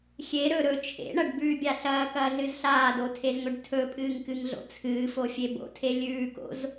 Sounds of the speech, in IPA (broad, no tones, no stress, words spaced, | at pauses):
xʲe ɾɵ ɾɵ t͡ʃʰḛɳɐɖbʉːbʲa ɬɐːkɐːɮɨz ɬaːdotʰezŋɵɖ tʰɵpʼɨːŋkɨŋɮo̰ t͡sʰɨːfofʲe bo̰tʰe lʲʉːko̰z